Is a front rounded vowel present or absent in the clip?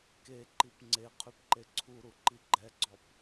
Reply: present